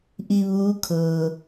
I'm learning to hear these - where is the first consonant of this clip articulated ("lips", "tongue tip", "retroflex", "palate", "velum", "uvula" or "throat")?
throat